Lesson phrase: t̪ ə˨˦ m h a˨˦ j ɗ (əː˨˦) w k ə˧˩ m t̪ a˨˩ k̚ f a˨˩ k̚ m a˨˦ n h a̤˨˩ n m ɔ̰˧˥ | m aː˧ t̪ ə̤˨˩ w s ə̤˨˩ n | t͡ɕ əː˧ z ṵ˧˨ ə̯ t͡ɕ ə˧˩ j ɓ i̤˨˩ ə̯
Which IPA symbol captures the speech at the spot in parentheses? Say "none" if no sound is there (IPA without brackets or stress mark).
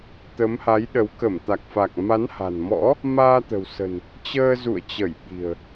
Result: ə˨˦